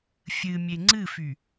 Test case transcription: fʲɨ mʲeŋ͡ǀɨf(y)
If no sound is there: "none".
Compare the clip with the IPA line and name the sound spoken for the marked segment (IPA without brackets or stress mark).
y